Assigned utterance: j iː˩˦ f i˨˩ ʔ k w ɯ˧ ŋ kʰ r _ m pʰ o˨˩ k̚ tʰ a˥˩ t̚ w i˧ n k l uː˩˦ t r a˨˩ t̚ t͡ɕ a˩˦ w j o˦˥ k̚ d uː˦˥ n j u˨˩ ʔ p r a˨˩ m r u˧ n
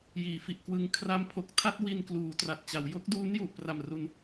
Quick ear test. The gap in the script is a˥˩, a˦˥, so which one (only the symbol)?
a˦˥